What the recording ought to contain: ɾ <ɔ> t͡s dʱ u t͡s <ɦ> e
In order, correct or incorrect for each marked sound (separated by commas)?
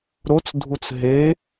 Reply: incorrect, correct